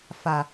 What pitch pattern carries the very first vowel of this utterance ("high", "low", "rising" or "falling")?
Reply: low